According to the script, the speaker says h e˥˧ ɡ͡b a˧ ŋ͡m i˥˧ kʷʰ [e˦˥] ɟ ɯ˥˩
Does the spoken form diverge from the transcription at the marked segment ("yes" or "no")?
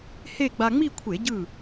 yes